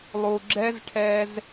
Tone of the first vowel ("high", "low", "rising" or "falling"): low